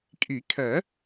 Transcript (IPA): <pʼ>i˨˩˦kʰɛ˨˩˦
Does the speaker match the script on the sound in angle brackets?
no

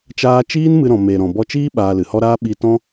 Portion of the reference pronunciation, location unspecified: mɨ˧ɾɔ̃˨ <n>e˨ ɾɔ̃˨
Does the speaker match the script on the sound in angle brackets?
no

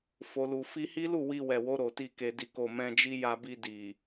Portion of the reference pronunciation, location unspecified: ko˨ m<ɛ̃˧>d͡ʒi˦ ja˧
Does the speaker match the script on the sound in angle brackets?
yes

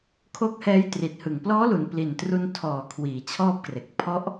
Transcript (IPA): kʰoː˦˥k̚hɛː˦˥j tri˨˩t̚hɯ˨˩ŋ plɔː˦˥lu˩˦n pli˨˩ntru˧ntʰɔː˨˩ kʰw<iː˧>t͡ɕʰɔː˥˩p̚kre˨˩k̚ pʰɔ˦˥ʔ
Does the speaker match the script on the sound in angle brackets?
no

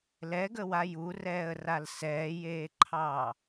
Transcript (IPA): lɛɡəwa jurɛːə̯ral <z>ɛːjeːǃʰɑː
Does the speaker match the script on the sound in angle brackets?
no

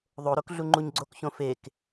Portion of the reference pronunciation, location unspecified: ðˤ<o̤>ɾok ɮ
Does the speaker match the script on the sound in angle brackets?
no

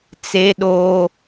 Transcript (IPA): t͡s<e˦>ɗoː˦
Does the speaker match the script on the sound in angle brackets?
yes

